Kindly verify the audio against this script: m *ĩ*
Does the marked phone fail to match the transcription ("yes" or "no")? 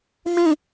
no